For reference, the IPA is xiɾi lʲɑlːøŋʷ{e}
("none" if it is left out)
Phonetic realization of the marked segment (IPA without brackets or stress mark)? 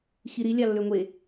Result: e